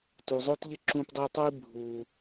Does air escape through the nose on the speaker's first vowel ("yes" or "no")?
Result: no